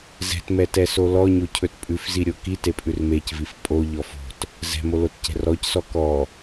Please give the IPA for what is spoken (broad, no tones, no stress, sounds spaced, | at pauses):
z ɛ̤ t m ɛ t ɛ s o l ɔ ɲ o cʰ ɵ t pʼ ʉ f z i ɾʲ o k i t e pʼ ʉ r m e c v i f pʼ o ʎ ɔ f o̤ t | z ɛ̤ m o l o t c ɛ̤ r ɔ c s ɔ k ɔ